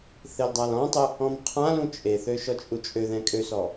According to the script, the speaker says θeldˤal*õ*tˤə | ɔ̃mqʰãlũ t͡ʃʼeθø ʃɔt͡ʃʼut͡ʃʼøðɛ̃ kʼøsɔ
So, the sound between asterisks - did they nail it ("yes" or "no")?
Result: no